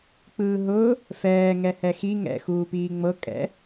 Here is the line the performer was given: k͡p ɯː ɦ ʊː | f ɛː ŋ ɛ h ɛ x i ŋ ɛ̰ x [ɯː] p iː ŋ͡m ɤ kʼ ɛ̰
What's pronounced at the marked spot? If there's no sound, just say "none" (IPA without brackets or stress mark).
uː